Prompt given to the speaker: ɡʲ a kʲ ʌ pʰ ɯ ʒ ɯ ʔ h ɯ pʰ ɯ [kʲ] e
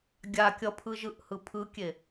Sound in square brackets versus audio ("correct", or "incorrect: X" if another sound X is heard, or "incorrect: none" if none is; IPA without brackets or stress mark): correct